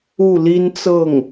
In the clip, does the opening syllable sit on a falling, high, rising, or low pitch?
falling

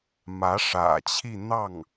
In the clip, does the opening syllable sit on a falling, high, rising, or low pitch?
rising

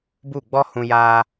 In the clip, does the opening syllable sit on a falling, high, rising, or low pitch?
falling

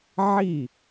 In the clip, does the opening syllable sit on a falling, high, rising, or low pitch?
falling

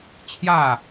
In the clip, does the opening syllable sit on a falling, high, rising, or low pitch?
falling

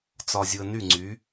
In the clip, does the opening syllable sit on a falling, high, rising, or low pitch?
low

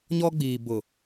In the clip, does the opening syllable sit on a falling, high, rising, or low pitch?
high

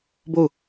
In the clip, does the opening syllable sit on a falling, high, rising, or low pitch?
falling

